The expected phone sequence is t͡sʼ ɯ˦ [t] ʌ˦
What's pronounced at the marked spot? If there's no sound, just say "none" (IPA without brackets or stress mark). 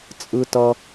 t